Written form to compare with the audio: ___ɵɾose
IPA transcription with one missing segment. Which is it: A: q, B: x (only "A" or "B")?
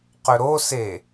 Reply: A